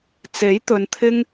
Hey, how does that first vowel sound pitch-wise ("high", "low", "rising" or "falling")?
rising